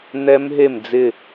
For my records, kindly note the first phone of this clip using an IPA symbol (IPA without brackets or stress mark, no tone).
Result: n̪